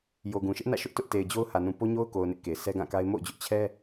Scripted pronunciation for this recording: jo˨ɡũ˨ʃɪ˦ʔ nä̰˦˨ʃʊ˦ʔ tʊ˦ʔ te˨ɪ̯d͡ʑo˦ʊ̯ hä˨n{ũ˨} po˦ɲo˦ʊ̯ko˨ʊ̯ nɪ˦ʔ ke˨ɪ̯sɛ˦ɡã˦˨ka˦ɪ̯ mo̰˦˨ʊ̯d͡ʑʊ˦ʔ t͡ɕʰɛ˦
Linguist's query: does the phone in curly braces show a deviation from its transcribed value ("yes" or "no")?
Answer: no